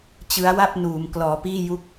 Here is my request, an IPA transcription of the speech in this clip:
t͡ɕ ɯ˦˥ a̯ w a˥˩ p̚ n uː˩˦ m k l ɔː˩˦ p iː˥˩ j u˦˥ k̚

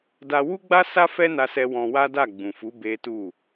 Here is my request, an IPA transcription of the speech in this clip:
d a˧ w u˦ ɡ͡b a˦ s a˦ f ɛ˦ n a˧ s ɛ˧ w ɔ̃˧ w a˦ d a˦˨ ɡ͡b ũ˨ f u˨˦ b e˦ t u˦˨

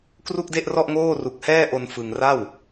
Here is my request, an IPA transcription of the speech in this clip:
k r u˥˩ k̚ d e˥˩ ʔ r ɔ˥˩ ʔ ŋ oː˥˩ r u˨˩ k̚ h ɛː˥˩ ʔ o˧ n f ɯ˧ ŋ r a˥˩ w

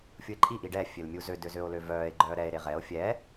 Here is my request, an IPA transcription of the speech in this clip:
fʲ u e̯ ǃʼ i ʔ i ɖ ɛː fʲ ø l mʲ u z ø d ø z ø o̯ l ø v œː e̯ ɡ͡ǃ œː ɾ ɛ e̯ ɾ e ʁ ɛ o̯ fʲ ɛː

